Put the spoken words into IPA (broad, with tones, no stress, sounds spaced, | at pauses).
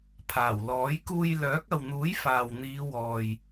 pʰ aː˨˩ w l ɔː˨˥ j k uː˧ j l œː˨˥ k̚ ɐ˨ w n̪ uː˨˥ j f aː˨ w n̪ iː˨˧ w ɔː˨ j